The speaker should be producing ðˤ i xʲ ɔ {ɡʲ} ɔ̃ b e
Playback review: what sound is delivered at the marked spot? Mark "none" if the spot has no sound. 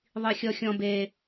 xʲ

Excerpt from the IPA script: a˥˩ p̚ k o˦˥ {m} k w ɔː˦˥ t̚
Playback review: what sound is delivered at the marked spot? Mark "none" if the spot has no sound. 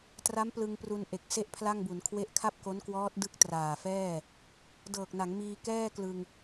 n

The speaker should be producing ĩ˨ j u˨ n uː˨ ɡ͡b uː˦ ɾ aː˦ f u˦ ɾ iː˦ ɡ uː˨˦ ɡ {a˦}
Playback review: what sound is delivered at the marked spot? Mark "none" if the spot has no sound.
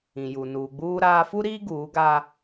a˦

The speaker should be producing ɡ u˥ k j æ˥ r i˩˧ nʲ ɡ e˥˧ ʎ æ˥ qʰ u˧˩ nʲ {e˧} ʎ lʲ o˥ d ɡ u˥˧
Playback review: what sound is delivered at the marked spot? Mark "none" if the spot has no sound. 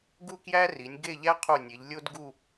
e˩˧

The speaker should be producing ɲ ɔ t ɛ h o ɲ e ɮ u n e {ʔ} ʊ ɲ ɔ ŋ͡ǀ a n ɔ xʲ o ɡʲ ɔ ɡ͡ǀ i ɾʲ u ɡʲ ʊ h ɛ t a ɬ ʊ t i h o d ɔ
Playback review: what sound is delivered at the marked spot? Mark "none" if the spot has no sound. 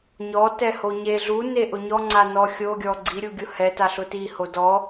ʔ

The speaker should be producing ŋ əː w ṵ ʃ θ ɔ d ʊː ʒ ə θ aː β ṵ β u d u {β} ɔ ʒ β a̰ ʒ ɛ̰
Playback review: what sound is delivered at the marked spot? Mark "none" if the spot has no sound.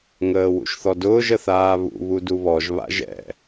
β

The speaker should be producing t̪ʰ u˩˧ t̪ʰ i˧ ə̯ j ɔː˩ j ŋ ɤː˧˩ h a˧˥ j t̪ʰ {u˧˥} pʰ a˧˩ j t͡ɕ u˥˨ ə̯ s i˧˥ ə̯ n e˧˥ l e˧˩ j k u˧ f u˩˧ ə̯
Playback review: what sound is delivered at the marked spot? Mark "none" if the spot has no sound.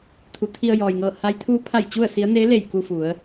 uː˧˥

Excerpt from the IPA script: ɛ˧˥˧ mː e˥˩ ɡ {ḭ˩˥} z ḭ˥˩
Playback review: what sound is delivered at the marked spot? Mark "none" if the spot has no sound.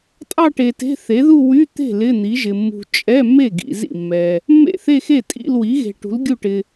ḭ˨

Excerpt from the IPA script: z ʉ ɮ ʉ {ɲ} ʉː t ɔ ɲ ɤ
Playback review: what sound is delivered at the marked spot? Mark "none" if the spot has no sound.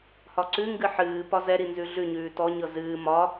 ɲ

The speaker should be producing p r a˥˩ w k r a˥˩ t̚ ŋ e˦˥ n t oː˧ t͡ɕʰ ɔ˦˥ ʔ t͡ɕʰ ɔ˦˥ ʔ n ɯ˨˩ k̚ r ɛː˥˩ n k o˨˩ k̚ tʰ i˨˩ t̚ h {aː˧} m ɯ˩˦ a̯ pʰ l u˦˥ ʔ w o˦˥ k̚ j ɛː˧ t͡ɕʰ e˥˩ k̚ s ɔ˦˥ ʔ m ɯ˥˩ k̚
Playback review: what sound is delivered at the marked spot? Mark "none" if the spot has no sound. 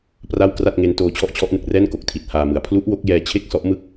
aː˧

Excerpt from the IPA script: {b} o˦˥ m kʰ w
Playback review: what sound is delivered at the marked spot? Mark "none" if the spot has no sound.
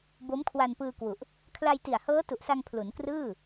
b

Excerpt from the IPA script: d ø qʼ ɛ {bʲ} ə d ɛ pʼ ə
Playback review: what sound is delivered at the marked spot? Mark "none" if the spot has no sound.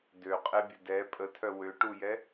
bʲ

